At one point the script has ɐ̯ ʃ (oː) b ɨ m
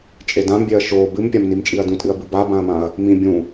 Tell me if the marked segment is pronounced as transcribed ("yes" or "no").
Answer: yes